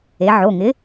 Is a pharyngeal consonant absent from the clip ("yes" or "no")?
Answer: no